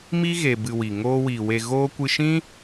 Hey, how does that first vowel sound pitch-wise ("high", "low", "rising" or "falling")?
high